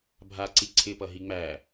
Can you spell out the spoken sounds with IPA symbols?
bʱ a ǀ i ǀʰ ɪ p ʌ ɦ i ŋ͡m æ

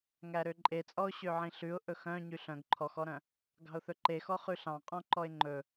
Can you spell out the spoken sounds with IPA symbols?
ŋ æ ɾ ø ǃʼ e t͡sʼ ɔ ʊ̯ ɕ ø ʕ ĩ ɬ ʉ ʊ̯ ʔ ɵ x œ̃ ɲ y ɬ œ̃ ɡ ǃʰ ɔ x ɔ ɾ œ̃ | ɡ ɑ̤ ʊ̯ θ ɵ ǃ e x ɔ χ ʉ ɬ ɑ̃ qʼ ɔ̃ ǃ ɔ ɪ̯ ŋ͡ǃ ɵ

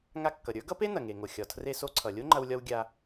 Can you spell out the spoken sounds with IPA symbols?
ŋ a˧ kː ʌ˩ ɾʲ ə˞˥ ɡ ʌ˥ p e˥ n ɐ˩ ŋ e˩ ŋ o˩ xʲ ɒ˩ tʰ r e˧ s o˧ ǀʰ ʌ˩ lʲ o˥ ŋ͡ǃ ɐ˧ w lʲ ɒ˧ w ɡʲ a˧

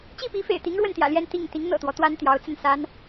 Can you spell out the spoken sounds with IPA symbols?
t͡ɕ i˥˩ p i˧˥ f ḛ˨˩ ɪ̯ t̪ i˧˥ ŋ ɻ w ə˥˩ n t̪ j ä̰˨˩ l j ɛ˥˧ n t̪ i˥˩ ŋ t̪ i˧˥ ŋ n̪ ɤ̰˨˩ t̪ w ɔ˦ t̪ w a˥ n t̪ j ɑ˧˥ ʊ̯ t͡s ə˥˩ n s a˥ n

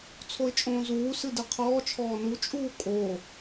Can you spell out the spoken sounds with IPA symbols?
t͡sʰ o ɪ̯ t͡ʃʼ õː z uː s ɨ d ɨ qʰ ɔː t͡ʃʰ ɔː n u t͡ʃʼ uː kʼ o

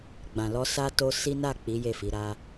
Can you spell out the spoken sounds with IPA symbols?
ɡ͡b ã˨ l ɔ˧ s a˦ t o˦ s i˦ n a˦˨ k͡p i˨˦ j e˦˨ f i˨˦ ɾ a˦

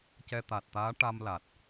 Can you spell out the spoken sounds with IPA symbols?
c ɛ˧ t̪ a˨˩ t̚ t̪ aː˧˥ ʈ a˧ m l a˨˩ t̚

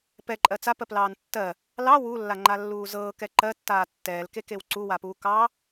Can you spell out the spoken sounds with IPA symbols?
p ɛ ǃʼ ɜ t͡s a p ɜ p l ɑː n tː ɜ | l ɑ w u lː a ŋ͡ǃ a lː uː z ɤː k ɛ ǃ ɜ tː aː tː ɛː l k e k e w ǀ u w a p uː k ɑː

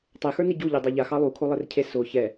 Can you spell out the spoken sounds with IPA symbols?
tˤ e x ə˞ n i ɟ u ʎ e dˤ a ʎ a x ɑ lˠ u kʰ o lˠ e r cʰ e s o ç ɛ

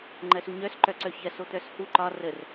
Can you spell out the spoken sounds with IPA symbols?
ŋ͡ǃ ɜ s u ɲ œ s ǃ œ ǀ œ ç ɜ s o t̪ œ s h u ǃ ɒ r ə r

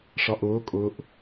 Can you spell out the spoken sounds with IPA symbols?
ʂ ɒ ʔ ʊː kʼ ʊː ʔ

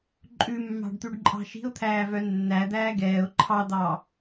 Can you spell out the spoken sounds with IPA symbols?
ǃʼ ʉ mː ɑ̤ ɖ t̪ ʉ ɖ ǃʼ ɑ̤ ʃ i̤ ʊ̯ t̪ʰ æː v œ nː æ d̪ æː ɡ ɛː ʊ̯ ǃʰ ɑ d̪ ɑ

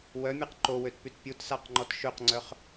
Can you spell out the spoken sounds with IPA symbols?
w œ mʲ ɛ q ǃ o w ø t p y t pʲ u t s a q ŋ͡ǃ ɔ t ʃ ø q ŋ͡ǀ œ χ

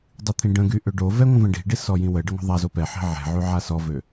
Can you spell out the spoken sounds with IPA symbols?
dˤ i t̪ʰ ĩ ɖ ə̃ ɡ y ʔ ø ɖ o v ɛ ŋʷ ə̃ v ə̃ ɖ i̤ ɖ i s ɔ j ĩ w ə ɖ ə ŋʷ ɛ̤ ðˤ a z o p ɛ ħ i̤ ʕ ɛ̤ ʕ y ʕ a s ɔ v ø

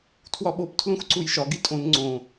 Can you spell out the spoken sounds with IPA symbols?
tʰ w ɒ ɓ o p tʰ l ũ x ǀ u j ʃ ɒ ɡ i tʼ õ n ŋ͡ǀ õ

